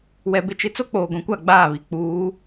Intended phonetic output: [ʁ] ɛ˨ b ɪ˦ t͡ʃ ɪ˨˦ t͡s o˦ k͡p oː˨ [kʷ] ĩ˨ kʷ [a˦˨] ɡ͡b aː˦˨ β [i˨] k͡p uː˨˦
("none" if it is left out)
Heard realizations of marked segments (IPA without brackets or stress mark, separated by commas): w, ɡʷ, a˦˨, i˨